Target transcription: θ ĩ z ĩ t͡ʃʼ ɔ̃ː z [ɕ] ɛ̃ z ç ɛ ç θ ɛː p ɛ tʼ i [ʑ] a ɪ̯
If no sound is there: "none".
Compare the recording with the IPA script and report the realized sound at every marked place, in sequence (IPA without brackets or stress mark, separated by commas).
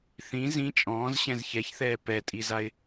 ɕ, z